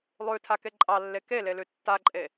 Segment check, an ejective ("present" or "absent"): present